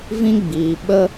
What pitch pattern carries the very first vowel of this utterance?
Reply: high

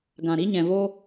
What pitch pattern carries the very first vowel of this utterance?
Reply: low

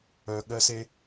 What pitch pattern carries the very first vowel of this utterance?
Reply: low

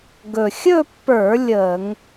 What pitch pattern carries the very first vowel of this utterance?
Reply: low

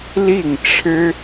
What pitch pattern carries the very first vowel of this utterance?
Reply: falling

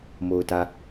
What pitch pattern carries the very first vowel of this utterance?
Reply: low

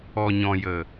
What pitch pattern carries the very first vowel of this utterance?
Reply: low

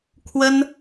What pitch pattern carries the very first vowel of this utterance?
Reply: high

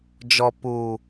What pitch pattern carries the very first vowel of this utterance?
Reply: low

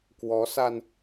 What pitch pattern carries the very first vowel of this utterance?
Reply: rising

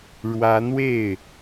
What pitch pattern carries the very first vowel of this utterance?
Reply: rising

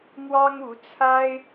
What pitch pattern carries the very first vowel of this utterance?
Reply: high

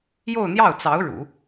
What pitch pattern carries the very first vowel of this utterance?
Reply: falling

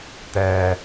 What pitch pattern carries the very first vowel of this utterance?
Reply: low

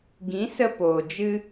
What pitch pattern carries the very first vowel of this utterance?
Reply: rising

